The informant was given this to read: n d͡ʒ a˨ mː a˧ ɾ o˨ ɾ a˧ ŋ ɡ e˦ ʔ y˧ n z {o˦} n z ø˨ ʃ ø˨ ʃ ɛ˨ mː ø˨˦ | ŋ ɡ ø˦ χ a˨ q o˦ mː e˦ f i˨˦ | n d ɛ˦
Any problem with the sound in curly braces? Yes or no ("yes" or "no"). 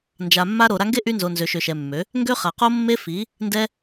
yes